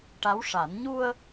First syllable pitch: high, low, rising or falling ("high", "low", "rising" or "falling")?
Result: rising